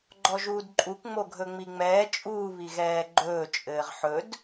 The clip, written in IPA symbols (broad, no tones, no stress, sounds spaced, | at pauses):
ɡ͡ǃ ɔ ʒ uː d ǃʼ u k ŋ͡m o ɡʱ ɵ ŋ͡m i ŋ͡m ɛː t͡ʃʼ uː β i ɣ ɛː ɡ͡ǃ ɵː t͡ʃʼ ɘː ʁ ħ ɵ d